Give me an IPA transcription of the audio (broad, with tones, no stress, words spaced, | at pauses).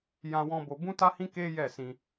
jã˧wɔ̃˧ bo˧bũ˦ta˦hĩ˦ ke˦jɛ˦˨sĩ˧